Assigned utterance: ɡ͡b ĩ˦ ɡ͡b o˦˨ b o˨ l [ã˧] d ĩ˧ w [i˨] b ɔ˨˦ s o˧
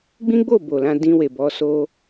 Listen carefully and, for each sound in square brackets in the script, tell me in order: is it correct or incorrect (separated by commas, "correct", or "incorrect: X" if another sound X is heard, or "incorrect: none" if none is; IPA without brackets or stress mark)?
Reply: correct, incorrect: e˨